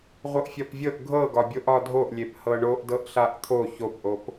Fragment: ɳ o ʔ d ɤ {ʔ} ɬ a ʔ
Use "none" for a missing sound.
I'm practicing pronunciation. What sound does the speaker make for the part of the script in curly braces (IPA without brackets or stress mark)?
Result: ʔ